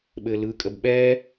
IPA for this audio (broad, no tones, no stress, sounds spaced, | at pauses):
ɓ ɘː l ɯː kʼ ə b ɓ ɛː